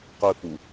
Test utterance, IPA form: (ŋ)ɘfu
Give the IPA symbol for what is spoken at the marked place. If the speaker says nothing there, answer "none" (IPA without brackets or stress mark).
q